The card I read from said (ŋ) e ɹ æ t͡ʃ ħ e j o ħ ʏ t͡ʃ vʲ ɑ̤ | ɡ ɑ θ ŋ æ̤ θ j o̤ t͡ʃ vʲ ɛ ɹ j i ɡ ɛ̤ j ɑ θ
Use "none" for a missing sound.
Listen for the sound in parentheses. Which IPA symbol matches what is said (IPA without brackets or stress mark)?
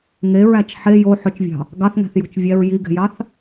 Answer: ŋ